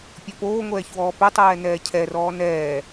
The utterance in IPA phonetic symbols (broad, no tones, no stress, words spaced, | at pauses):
pʲɔpoːŋʷɛːçwɔː pʏtˤɛː nɛːcʰɛrɔː nɛː